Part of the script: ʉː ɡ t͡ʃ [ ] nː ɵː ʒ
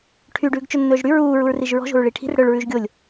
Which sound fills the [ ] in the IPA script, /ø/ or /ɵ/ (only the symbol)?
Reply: ɵ